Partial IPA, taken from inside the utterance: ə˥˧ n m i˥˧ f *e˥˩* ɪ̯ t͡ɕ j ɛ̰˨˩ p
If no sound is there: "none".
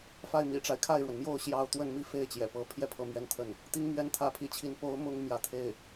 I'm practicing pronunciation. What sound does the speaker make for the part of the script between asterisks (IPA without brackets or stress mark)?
e˥˩